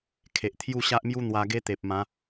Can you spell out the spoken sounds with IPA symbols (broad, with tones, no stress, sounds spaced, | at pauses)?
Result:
kʰ e˨ ʔ t̪ʰ j u˥˧ ɕ a˦ ʔ m j u˦ n̪ w a˧ ɡ e˦ t̪ e˨ p̚ m ã˨˦